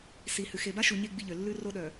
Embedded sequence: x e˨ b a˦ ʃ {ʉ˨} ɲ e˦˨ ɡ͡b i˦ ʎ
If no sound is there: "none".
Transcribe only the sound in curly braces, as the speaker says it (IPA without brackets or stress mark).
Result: u˨